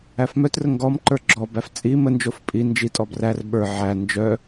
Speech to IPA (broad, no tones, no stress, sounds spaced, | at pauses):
æ f m œ t r ə ŋ ɡ ɔ m ǃ ə˞ ɡ͡ǁ ɔ b æ f t͡sʼ i m ə n d͡ʒ o f pʼ i n d͡ʒ i tʼ ɔ b r æ r ɓ ə˞ ʕ æ n d͡ʒ œ